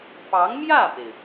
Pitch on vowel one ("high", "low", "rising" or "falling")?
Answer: rising